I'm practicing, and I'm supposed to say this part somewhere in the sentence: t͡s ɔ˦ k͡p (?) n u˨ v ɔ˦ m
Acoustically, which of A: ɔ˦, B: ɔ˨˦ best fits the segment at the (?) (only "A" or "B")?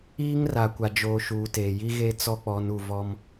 B